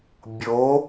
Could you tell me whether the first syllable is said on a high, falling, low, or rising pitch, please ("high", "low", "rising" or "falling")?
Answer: rising